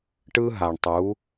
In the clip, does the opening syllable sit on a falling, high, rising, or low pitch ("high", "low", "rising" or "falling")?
high